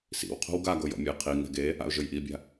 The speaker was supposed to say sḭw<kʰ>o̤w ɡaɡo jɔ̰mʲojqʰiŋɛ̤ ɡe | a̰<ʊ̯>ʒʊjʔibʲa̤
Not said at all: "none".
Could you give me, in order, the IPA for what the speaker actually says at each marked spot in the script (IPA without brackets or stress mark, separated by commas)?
qʰ, ʊ̯